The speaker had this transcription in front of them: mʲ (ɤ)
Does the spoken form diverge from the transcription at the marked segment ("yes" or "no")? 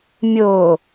yes